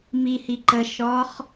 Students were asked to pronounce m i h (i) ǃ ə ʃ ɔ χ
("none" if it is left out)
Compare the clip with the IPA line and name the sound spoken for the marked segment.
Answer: i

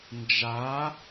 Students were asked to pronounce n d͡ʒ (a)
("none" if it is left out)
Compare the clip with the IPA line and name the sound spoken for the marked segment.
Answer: a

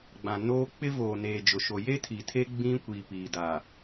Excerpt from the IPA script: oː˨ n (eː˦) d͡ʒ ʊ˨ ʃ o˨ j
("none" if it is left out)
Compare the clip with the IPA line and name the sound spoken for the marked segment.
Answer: eː˨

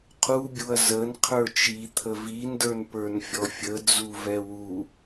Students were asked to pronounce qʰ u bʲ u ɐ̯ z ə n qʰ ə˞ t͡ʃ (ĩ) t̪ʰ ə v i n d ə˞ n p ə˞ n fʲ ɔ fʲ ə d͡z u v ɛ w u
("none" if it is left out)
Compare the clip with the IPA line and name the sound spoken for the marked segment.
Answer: i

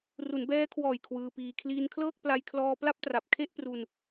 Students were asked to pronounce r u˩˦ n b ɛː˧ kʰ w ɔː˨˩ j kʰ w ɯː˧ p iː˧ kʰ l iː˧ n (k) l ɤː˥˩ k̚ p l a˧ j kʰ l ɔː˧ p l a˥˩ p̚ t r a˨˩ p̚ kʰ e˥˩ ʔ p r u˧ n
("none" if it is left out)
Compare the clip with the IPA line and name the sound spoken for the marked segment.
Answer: kʰ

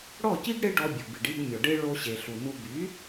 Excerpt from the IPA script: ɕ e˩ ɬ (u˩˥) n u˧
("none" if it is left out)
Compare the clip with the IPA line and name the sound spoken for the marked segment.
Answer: u˩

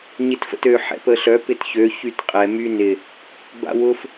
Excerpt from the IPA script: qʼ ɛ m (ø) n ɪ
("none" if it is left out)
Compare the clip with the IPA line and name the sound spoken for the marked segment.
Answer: y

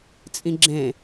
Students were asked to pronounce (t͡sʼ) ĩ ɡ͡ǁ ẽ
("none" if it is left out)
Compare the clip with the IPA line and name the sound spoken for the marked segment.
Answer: t͡sʼ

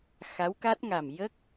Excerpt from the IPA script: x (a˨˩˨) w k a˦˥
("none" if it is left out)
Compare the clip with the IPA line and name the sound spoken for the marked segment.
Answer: a˧˥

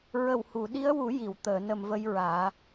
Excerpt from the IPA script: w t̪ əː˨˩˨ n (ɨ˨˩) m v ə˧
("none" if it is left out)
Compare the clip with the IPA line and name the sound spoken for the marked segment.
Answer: ə˨˩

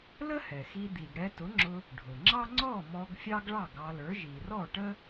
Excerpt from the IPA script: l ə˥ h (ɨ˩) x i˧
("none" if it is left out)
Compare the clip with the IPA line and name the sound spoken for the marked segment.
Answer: ɛ˩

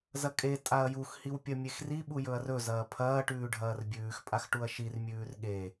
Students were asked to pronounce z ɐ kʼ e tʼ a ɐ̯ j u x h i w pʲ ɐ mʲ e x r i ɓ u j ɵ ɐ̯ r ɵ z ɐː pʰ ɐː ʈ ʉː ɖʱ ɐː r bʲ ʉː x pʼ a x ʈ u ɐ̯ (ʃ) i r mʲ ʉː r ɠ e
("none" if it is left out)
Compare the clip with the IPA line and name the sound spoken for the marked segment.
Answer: ʃ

